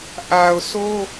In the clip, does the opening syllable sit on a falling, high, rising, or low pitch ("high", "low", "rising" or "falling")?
low